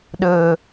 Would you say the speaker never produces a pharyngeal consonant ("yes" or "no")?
yes